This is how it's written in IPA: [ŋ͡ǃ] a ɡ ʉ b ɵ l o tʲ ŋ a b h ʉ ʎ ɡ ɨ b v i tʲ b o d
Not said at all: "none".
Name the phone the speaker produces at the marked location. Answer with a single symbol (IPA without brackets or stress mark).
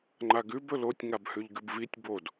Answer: ŋ͡ǃ